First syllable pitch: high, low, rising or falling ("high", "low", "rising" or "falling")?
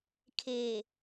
low